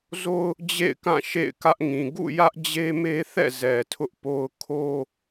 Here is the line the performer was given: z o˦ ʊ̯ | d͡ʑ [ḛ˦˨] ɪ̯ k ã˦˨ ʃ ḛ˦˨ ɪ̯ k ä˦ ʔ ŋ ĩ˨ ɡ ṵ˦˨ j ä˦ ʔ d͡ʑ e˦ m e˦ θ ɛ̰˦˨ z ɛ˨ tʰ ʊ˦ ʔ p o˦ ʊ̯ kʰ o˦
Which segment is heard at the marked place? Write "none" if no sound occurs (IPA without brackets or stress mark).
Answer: ḛ˦˨